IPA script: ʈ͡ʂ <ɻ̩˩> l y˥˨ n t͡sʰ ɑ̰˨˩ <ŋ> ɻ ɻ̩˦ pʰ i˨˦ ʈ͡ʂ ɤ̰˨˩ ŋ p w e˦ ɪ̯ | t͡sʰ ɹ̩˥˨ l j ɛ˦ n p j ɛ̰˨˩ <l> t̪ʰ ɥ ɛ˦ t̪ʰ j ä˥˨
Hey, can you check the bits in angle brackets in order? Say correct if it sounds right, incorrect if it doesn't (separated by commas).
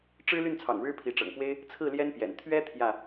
incorrect, correct, incorrect